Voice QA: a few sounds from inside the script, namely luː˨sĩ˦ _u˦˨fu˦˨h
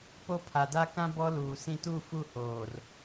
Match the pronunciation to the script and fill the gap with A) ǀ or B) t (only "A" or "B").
B